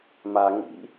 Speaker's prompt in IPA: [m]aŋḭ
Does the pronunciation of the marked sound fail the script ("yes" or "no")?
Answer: no